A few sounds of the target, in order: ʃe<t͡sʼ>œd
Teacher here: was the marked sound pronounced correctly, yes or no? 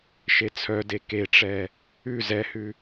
no